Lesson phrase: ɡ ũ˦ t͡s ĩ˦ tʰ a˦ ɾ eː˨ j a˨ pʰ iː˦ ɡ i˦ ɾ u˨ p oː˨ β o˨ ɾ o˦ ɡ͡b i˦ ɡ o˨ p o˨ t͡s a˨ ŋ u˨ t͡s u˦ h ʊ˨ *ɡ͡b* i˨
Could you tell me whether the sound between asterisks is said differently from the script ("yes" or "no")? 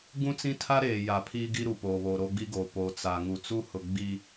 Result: no